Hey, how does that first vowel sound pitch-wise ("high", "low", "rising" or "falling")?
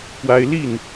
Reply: high